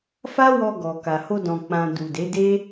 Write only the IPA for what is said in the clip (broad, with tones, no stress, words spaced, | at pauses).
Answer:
fa˦wɔ˧ɡɔ˨ ka˨ho˧dɔ̃˨ k͡pã˨ du˨ de˨˦de˦